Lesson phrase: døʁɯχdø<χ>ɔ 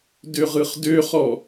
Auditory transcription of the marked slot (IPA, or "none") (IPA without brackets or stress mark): χ